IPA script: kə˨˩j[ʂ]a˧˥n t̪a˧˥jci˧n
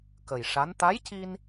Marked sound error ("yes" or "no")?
no